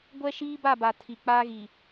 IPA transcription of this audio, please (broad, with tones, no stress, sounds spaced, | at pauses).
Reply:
ɡʷ ɛ˦ ʃ iː˦ b a˦˨ b a˨ tʰ i˨ k͡p aː˦ ɣ i˨